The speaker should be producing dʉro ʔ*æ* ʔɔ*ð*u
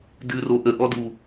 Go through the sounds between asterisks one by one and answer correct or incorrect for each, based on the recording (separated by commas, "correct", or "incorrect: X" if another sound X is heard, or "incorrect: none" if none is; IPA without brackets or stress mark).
incorrect: ə, incorrect: d